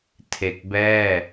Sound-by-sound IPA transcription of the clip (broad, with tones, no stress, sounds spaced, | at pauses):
tʰ e˨˩ k̚ b ɛː˥˩